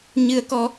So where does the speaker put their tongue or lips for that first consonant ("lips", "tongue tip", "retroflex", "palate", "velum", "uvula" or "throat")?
palate